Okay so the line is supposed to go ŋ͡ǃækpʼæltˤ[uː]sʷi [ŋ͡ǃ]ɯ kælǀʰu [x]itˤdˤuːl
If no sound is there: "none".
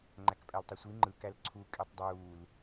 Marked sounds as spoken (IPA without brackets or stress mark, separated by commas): u, ŋ͡ǃ, kʼ